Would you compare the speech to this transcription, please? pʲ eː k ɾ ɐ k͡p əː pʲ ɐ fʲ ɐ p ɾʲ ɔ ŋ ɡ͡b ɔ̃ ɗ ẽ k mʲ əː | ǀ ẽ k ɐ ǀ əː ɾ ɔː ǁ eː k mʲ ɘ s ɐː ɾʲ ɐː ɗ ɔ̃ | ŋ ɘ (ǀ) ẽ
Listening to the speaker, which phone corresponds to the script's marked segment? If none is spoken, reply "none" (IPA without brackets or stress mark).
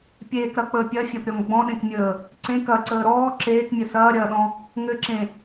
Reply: ǁ